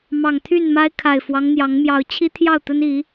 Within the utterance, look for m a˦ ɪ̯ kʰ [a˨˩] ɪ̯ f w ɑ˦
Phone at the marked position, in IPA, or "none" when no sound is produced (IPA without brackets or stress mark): a˨˩